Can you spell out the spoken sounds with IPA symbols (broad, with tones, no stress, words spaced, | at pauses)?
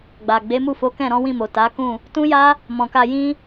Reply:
ɡ͡ba˨ ɡ͡be˨˦mu˦˨fo˨˦ kɛ̃˦˨ɾɔ̃˨˦wĩ˦˨mo˨ ta˨˦kũ˦˨ | tũ˦ja˦ | mɔ̃˨ka˧jĩ˦